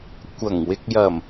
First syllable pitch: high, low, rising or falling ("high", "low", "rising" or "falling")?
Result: low